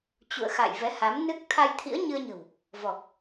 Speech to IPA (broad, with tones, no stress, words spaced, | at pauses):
t͡ɕṵ˧˨ə̯xa̰˧˨j vɛ˨˦ha˨˦mnɨ˦˥k̚ t̪ʰa˧jt̪ʰḭ˧˥ə̯ɲɨ˧ə̯ɲə̤˨˩w | vɔ˨˩k̚